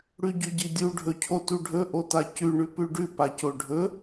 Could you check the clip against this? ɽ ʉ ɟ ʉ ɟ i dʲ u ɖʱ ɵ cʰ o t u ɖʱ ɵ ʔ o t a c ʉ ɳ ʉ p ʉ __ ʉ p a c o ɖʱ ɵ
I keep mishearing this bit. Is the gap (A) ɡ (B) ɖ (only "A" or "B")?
B